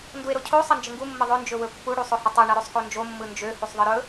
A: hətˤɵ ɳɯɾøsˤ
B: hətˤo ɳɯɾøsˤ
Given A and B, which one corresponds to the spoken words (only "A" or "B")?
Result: A